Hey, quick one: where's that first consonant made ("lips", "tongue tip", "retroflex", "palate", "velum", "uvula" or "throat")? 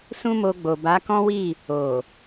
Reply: tongue tip